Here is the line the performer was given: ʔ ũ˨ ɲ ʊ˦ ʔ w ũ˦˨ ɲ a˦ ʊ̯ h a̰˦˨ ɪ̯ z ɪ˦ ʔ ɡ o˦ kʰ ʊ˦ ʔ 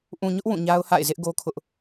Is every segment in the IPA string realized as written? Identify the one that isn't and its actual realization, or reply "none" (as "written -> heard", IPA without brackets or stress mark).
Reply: none